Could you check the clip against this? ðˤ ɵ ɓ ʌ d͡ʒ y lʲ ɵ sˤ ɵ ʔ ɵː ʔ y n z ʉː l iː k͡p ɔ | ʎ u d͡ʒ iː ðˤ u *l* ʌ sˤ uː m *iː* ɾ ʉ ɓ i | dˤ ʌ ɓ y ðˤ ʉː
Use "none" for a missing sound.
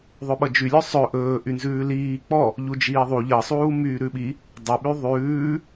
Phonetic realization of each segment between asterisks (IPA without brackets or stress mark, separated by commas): ʎ, yː